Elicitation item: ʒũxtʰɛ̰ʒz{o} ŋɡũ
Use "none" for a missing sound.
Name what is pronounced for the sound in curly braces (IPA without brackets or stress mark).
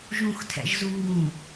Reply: u